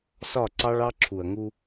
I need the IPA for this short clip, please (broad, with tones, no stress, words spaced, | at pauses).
sɒ˦˨ǀɑ˦ɭɑ˦ ǁʰu˨ɐ̯ŋu˦